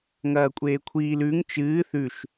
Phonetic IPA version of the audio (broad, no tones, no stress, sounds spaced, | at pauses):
ŋ ɐː kʷʼ eː kʷʰ iː l ʉ ŋ t͡ʃ ɨː θ ʉ ʃ